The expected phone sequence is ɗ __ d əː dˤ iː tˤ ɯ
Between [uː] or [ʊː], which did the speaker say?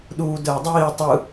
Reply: uː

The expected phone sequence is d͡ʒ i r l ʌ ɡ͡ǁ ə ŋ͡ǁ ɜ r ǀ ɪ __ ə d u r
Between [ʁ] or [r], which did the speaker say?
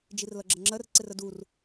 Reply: r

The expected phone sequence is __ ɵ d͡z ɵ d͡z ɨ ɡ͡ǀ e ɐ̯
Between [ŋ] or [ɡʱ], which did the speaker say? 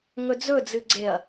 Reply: ŋ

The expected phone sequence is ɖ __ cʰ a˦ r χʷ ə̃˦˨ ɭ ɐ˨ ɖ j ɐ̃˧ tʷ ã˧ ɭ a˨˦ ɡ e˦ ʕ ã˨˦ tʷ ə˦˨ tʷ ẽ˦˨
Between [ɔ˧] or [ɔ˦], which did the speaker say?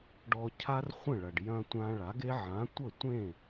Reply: ɔ˧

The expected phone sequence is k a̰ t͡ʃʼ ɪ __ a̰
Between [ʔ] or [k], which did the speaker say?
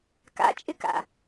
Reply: k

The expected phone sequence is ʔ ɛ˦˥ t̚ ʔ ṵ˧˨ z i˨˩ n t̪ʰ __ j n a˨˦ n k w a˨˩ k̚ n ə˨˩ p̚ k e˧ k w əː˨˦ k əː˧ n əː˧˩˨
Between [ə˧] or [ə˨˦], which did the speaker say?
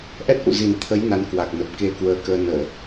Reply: ə˨˦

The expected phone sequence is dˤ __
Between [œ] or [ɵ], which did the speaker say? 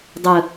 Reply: ɵ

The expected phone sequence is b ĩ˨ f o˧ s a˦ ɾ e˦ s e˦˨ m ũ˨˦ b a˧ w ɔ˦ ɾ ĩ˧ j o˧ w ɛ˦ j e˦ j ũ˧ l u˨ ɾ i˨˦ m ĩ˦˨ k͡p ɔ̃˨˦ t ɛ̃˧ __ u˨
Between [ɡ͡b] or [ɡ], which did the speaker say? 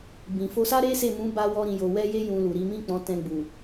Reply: ɡ͡b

